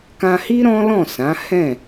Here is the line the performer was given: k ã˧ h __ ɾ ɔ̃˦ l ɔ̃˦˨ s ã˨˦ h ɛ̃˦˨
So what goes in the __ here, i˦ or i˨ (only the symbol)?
i˦